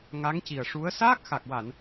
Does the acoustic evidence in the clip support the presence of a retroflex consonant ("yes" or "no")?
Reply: yes